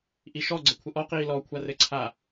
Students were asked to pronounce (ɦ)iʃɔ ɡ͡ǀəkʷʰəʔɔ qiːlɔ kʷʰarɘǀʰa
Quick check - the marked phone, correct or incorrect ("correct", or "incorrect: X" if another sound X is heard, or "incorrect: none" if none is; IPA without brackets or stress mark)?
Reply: incorrect: ʔ